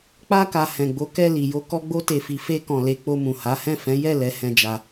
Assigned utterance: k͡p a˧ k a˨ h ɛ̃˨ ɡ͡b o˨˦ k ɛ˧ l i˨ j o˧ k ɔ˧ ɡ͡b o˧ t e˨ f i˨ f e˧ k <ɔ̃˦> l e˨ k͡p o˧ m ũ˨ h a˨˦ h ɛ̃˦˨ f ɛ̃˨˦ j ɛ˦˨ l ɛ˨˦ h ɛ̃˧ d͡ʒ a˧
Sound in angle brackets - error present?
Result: yes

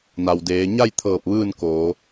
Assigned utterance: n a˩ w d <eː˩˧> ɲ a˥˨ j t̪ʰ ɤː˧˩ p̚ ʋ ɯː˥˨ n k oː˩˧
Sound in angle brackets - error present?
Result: no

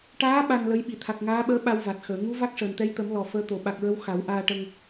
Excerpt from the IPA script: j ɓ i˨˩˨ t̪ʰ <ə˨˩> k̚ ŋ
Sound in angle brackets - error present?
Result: yes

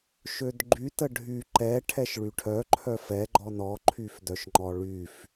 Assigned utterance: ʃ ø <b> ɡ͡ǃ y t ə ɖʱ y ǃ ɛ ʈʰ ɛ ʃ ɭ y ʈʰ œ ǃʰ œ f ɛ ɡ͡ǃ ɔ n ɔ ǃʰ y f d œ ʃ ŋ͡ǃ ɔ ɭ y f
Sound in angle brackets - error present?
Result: yes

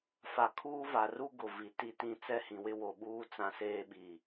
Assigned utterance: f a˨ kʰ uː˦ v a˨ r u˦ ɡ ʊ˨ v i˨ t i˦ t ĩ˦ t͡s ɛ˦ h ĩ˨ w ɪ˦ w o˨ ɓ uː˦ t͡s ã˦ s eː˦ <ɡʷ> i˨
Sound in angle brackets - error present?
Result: yes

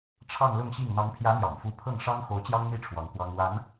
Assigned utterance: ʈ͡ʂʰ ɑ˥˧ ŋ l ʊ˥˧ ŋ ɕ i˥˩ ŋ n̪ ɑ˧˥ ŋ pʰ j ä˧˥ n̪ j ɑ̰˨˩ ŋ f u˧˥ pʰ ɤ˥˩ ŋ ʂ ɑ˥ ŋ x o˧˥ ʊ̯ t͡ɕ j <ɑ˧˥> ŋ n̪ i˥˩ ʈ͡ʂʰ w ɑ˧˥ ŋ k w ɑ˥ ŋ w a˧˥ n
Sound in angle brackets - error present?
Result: yes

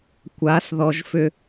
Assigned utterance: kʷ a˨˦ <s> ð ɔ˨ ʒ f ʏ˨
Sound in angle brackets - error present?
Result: no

